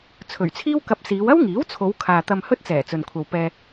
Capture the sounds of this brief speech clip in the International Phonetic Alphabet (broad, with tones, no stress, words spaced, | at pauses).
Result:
t͡sʰɵ˨˩ɥt͡sʰiː˥wkɐ˧p̚ siː˨˧wɐ˥wŋiː˨˥wt͡sʰo˨˧w kʰaː˨t̪ɐ˧mhɵ˥t̚t͡sɛː˨˩ t͡sɵ˨nkʷʰɐ˨wpɛː˧